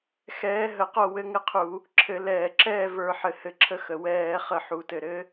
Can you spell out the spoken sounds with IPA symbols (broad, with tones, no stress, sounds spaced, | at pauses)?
x ɛː˧˥ ɦ ə˧˩˧ q o˥˨ w ɘ˧˥ ŋ ɘ˧˥ qʰ u˧˩˧ | ǁʰ ɘ˧˩˧ l ɛː˧˩˧ ǁ ɛː˥˨ v ə˞˧˩˧ ħ ɘ˨˩ h ɘ˧˩˧ ǁʰ ə˧˥ x ə˨˩ w ɛː˧˩˧ χ ə˧˩˧ ħ u˩˧ t ɘ˨˩ ɾ ɘ˧˥